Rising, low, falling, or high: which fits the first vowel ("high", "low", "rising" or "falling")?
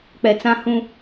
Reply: low